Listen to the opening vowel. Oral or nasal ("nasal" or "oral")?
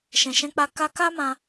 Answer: nasal